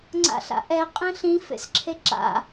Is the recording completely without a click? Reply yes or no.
no